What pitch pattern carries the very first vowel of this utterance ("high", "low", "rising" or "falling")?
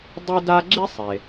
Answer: high